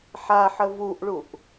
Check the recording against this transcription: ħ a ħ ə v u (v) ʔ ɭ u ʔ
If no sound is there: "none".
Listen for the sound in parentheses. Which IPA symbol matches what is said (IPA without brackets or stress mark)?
none